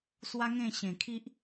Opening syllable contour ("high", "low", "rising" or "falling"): high